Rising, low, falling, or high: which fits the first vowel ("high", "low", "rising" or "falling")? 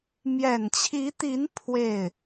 low